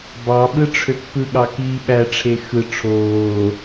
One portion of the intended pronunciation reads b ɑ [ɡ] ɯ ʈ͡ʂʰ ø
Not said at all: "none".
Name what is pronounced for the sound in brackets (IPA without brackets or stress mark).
ɓ